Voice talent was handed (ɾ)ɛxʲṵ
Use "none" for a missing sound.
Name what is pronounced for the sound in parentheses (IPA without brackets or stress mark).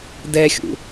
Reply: d